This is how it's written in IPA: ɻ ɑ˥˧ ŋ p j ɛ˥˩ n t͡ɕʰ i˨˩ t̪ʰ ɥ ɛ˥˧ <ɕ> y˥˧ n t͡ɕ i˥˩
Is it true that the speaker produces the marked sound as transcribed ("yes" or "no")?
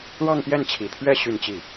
yes